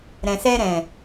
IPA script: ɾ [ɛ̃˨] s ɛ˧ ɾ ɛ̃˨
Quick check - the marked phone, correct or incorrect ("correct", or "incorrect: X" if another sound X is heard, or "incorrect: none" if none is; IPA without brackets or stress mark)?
correct